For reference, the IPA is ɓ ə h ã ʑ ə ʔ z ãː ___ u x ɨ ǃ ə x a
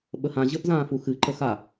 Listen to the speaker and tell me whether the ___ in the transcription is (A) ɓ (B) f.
B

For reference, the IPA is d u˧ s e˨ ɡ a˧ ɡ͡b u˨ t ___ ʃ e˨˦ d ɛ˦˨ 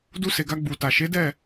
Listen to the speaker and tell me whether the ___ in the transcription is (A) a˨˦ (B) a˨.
B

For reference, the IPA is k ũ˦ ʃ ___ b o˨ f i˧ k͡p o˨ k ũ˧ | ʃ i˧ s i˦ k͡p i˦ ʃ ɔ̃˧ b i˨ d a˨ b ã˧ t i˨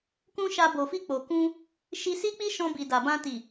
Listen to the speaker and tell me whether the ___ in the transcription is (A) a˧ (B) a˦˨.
A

